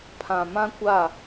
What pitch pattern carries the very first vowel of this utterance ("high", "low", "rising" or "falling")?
low